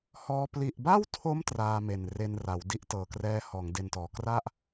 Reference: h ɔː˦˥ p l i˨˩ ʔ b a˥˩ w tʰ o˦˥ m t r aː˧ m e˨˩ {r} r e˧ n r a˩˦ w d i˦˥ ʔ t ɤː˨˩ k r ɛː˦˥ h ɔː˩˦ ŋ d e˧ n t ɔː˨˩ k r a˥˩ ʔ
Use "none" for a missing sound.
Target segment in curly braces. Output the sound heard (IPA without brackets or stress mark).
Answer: n